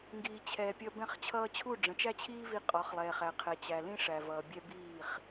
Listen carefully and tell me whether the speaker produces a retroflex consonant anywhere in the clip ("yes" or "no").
yes